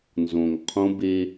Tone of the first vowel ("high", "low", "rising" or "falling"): low